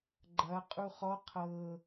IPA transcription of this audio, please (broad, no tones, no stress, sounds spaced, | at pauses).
ɡ͡ǃ ɐ qʼ u χ ɔ qʰ ɤ